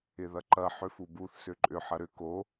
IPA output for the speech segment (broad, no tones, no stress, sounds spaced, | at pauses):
ɪ ð ɐ ǃ ɐ ħ ʏ f u b u θ s ʏ ǃʼ ʏ ħ ɐ ɾ ʏ k o